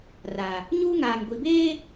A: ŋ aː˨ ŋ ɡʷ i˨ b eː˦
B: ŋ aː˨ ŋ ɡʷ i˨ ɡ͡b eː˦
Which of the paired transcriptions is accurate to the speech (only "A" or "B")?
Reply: A